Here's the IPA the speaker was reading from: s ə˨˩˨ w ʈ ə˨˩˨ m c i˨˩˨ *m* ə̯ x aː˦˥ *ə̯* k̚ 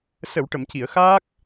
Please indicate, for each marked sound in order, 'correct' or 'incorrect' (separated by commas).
incorrect, incorrect